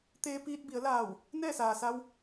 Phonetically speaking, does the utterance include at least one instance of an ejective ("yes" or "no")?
no